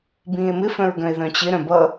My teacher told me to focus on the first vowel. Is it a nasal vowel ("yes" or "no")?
yes